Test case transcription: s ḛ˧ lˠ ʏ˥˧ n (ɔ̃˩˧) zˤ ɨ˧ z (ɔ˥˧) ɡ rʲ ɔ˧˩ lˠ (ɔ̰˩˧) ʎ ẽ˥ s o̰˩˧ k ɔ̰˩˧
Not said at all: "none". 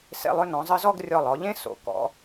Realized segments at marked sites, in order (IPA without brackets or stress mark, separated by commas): ɔ̃˩˧, ɔ˥˧, ɔ˩˧